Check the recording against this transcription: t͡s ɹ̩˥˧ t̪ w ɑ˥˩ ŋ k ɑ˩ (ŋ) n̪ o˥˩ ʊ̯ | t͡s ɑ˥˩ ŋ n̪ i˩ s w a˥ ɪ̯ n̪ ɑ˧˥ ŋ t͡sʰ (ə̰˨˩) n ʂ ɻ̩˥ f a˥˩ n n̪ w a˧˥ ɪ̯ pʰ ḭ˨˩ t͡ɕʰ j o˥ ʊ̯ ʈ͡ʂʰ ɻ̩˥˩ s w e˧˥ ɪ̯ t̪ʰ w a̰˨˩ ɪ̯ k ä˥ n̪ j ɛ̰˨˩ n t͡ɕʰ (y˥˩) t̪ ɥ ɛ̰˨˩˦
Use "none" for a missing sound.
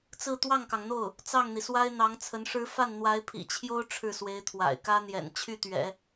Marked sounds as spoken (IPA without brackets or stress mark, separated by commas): ŋ, ə˧˥, y˥˩